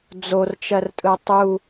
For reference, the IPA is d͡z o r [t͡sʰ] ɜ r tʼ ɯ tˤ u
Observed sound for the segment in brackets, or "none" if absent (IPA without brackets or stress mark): t͡ʃ